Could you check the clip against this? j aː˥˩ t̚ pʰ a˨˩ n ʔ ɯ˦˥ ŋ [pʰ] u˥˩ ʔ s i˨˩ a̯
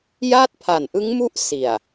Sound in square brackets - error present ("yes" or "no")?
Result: yes